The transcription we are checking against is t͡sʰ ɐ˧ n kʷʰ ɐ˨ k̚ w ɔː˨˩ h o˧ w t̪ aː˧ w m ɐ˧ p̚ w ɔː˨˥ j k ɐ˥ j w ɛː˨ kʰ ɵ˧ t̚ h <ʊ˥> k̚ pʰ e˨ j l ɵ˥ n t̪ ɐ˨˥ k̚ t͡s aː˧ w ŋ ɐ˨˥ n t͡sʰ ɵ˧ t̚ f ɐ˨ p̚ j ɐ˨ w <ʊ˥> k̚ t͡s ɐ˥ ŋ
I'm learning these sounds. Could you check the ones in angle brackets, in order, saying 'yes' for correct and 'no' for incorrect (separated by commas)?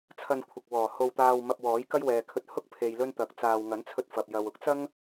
yes, yes